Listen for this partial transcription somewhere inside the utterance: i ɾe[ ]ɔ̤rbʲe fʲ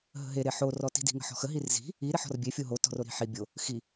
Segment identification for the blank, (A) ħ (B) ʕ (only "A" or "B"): A